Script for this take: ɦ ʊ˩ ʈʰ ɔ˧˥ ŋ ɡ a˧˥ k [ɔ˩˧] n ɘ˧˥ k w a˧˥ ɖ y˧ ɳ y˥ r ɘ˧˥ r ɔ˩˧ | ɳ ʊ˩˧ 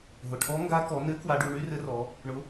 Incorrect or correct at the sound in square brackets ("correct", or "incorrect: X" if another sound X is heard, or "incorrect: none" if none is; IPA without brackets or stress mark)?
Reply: correct